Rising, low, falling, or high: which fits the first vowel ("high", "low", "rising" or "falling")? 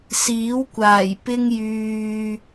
rising